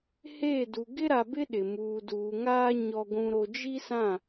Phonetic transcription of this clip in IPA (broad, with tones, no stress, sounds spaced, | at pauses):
h eː˦˨ d u˨ ɡ ɪ˦ ɾ a˨ b ɪ˦ ɗ ɪ˨ m uː˨ d uː˨ ŋ aː˦ ɲ ɔ˦ ɡʷ ũ˦ ɾ o˦ d͡ʒ i˦ s ã˦˨